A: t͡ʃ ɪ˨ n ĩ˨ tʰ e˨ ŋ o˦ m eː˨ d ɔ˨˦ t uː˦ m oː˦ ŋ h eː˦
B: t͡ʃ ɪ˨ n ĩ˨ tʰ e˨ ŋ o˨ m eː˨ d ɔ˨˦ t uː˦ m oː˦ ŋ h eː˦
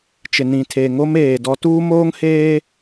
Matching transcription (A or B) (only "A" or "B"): A